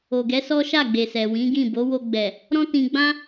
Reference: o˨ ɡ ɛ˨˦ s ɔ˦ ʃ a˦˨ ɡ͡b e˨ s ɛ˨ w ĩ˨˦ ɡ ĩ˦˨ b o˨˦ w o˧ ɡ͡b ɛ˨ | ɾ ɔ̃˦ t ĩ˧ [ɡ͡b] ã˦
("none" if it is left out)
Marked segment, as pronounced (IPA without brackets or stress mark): ɡ͡b